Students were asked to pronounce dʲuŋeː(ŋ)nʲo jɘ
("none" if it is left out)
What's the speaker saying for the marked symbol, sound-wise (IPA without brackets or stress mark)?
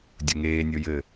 none